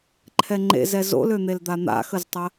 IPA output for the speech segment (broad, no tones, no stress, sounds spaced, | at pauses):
ǃʰ ɛ ŋ͡ǃ ḛ z ɛ z o̰ l ø n̪ e l d̪ a n̪ a̰ x ə z tˤ ə